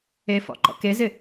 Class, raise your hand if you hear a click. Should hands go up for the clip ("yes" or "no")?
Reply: yes